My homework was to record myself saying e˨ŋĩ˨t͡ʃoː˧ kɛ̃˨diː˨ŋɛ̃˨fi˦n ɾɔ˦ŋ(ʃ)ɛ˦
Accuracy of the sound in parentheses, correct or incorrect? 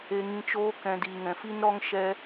correct